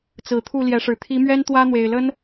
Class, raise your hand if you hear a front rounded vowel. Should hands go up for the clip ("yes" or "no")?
no